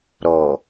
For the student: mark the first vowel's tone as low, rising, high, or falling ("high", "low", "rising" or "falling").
low